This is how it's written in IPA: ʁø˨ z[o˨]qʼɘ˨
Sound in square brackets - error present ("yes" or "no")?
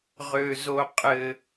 no